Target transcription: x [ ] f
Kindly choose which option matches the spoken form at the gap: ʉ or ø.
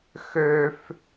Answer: ø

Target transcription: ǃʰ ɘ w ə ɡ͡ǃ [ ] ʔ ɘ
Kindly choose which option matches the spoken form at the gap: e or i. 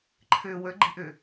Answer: i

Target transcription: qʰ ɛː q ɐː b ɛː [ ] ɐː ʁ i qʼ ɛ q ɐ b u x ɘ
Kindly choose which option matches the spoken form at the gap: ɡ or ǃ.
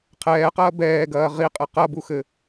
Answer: ɡ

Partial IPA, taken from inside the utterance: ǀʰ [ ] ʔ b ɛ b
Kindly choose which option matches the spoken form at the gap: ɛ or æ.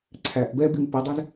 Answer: æ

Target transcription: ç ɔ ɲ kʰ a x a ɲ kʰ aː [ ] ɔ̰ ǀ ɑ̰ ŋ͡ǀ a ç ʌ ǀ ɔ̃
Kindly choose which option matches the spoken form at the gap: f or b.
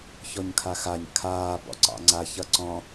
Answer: b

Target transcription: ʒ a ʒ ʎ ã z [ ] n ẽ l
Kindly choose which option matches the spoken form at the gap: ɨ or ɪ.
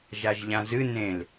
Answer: ɨ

